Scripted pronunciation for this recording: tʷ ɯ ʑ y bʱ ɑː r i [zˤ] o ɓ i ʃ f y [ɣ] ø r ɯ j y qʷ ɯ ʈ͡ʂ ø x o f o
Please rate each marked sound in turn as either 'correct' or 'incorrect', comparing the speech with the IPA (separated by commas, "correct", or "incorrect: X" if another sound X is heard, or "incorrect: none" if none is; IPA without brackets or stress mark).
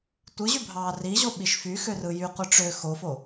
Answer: incorrect: ʑ, incorrect: x